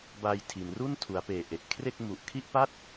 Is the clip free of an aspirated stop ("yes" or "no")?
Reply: no